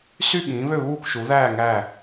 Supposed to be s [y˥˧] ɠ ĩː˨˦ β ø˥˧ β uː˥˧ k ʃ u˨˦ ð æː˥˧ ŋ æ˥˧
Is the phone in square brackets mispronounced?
no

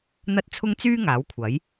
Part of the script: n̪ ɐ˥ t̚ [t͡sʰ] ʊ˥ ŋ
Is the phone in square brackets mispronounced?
no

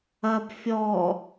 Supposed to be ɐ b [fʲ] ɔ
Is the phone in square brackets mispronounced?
no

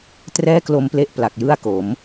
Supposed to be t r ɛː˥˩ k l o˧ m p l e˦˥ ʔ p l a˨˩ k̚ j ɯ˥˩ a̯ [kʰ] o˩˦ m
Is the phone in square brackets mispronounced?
yes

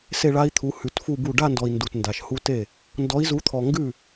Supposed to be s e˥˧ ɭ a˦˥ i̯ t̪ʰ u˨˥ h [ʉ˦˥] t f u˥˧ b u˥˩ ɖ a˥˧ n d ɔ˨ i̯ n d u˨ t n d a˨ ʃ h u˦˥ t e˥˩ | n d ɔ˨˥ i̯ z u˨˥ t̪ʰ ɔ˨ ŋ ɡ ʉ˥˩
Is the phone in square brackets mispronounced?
yes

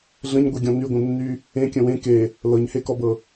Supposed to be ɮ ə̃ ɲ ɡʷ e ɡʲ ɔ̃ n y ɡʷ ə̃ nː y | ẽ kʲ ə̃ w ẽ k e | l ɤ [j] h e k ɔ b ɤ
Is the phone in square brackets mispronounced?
yes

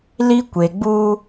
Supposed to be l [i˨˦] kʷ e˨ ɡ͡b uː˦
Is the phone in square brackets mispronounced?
yes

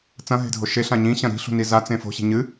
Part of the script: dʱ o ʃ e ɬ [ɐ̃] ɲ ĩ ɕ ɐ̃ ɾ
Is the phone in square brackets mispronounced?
yes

